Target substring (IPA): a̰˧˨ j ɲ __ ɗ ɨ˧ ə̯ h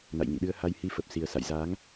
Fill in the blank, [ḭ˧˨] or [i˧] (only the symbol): ḭ˧˨